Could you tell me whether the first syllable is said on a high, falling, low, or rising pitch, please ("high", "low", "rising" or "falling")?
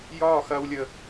falling